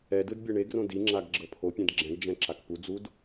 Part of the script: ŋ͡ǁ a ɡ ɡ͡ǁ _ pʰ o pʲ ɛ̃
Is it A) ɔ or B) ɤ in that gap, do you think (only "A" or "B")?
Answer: B